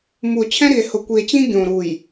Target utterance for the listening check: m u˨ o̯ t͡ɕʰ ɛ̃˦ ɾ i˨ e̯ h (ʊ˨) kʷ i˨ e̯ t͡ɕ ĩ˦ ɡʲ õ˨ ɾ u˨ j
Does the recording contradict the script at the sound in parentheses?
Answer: no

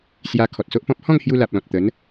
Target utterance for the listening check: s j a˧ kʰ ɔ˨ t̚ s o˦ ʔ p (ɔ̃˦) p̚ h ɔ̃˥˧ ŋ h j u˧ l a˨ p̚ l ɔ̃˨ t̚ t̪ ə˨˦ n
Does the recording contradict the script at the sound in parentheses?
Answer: no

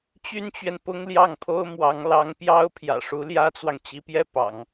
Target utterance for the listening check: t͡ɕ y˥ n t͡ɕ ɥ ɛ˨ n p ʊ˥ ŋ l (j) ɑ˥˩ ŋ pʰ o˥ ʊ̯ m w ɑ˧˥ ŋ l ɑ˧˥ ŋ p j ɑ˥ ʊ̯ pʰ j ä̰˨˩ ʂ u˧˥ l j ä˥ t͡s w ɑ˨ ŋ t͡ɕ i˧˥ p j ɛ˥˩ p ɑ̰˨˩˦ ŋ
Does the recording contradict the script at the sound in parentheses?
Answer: no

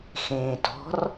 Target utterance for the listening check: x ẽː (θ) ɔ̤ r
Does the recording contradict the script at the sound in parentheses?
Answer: yes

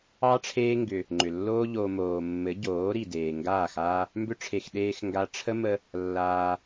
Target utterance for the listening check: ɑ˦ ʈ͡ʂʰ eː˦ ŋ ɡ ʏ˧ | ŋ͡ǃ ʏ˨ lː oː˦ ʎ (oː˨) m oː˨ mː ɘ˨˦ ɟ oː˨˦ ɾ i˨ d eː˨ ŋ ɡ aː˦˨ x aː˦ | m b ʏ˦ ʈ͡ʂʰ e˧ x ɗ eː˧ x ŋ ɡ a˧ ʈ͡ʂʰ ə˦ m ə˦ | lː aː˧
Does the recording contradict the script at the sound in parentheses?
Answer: yes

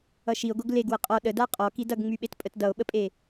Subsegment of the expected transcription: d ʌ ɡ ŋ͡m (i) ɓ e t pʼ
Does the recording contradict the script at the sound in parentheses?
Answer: yes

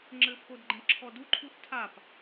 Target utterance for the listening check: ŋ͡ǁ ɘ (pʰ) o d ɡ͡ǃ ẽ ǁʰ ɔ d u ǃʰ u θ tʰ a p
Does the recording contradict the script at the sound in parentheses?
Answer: no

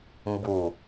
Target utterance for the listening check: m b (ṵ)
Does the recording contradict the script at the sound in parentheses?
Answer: yes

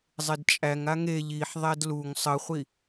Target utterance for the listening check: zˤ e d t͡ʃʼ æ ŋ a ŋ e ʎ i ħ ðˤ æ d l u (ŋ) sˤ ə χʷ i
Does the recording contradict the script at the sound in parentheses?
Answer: no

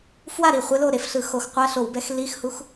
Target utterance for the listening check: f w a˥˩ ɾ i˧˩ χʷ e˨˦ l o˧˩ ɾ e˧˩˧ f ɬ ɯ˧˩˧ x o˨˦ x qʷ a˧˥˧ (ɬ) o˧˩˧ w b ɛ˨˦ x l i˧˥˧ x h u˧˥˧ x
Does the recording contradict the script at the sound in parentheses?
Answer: no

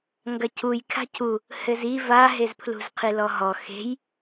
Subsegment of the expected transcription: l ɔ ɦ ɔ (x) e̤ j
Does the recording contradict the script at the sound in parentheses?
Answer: no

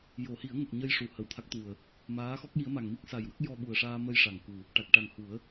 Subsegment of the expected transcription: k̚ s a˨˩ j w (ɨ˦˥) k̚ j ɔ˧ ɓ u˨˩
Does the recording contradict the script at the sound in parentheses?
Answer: yes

